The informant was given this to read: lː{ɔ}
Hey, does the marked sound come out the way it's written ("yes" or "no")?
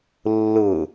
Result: no